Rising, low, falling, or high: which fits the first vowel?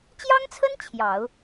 high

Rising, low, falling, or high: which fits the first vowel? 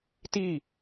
falling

